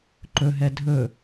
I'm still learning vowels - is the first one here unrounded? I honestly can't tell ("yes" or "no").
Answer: no